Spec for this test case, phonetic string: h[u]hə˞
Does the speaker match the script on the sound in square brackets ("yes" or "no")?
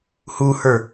yes